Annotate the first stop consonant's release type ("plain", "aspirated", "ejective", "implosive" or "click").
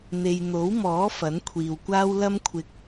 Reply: aspirated